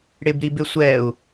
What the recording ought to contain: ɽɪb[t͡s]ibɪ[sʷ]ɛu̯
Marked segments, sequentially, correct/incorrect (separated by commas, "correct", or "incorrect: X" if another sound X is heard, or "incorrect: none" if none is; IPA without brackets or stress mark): incorrect: ɾ, correct